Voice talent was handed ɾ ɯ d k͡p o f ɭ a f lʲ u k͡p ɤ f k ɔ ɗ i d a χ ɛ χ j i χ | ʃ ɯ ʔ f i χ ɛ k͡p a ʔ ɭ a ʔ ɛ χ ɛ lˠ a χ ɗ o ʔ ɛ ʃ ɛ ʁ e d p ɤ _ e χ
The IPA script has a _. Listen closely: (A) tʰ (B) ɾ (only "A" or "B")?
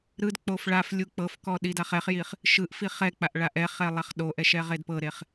B